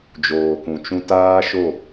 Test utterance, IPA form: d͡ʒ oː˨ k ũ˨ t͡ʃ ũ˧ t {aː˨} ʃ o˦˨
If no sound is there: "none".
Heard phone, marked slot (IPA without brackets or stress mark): aː˦